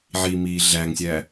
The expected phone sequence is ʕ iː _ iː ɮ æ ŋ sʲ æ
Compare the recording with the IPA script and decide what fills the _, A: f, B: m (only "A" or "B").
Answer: B